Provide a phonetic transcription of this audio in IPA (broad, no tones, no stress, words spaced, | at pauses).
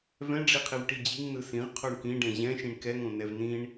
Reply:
vɛ̃ɖ͡ʐiqʰiv ʈid͡ʑiŋ nɯsĩʁ qʰoɳkĩɖɛ̃ ʑɛ̃ʃĩɳ kɛŋõ nɛvnĩɳ